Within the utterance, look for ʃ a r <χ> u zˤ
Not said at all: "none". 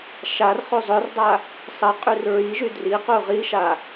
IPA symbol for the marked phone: χ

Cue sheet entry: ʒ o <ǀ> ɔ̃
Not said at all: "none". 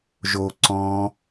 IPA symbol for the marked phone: ǀ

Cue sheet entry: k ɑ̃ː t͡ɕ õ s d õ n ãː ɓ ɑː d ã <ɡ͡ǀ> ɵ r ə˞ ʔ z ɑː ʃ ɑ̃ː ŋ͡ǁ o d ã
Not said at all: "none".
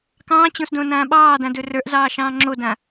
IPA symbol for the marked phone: d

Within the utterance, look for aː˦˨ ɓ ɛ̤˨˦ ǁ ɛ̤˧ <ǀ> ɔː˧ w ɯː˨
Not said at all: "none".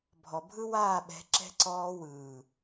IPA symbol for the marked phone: ǀ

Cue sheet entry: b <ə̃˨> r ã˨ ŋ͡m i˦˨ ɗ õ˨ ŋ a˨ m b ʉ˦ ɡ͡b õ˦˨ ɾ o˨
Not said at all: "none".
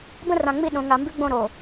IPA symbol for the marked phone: ə̃˦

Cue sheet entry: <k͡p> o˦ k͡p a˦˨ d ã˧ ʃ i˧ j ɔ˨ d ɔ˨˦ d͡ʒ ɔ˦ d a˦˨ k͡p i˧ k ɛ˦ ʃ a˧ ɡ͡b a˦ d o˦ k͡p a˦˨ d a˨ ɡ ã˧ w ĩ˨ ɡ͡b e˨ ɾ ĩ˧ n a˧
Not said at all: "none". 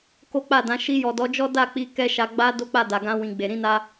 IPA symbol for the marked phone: k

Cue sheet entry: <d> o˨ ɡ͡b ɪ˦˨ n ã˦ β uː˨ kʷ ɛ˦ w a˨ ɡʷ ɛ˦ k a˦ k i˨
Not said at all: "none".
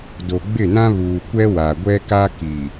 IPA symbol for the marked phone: d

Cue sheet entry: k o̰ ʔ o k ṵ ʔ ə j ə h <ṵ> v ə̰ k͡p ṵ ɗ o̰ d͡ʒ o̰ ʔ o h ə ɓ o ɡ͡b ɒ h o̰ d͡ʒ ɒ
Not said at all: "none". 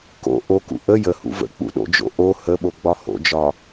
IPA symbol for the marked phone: ṵ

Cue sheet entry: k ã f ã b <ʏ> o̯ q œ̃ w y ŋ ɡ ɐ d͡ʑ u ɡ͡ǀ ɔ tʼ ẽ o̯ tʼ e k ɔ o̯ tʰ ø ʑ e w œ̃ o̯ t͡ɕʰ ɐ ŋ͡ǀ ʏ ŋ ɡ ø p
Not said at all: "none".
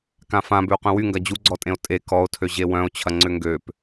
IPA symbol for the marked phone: ʏ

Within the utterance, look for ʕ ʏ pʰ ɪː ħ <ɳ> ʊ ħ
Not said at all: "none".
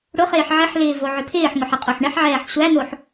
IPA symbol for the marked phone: ŋ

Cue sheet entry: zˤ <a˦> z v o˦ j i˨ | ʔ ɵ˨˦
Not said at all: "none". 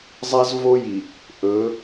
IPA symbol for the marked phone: a˦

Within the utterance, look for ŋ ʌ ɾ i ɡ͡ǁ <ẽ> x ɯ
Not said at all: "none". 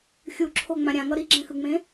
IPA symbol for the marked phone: ɛ̃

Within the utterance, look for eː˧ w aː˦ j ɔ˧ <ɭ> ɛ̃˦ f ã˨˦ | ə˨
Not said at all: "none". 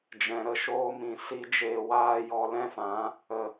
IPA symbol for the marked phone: l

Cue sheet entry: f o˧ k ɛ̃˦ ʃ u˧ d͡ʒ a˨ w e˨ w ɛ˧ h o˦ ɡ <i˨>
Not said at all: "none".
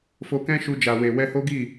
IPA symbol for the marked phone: i˦˨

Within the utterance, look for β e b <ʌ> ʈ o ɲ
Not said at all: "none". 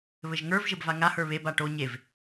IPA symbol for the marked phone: a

